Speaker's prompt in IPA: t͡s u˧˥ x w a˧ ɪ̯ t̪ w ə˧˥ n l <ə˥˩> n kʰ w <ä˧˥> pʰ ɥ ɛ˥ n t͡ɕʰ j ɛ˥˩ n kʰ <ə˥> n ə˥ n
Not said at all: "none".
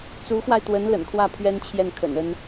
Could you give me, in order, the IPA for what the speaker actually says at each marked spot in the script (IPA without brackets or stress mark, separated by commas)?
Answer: ə̰˨˩, ä˥˩, ə̰˨˩